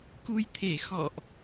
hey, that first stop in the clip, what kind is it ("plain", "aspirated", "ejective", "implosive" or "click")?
plain